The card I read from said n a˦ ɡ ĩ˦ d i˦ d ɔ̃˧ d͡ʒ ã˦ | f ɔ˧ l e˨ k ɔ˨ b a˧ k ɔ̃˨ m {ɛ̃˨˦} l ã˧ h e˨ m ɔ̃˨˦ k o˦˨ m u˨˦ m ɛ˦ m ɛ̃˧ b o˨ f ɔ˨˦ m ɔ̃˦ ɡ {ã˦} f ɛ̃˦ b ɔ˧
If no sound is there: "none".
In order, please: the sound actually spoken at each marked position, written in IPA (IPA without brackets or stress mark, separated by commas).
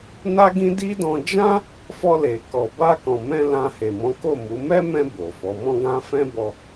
ɛ̃˧, ã˦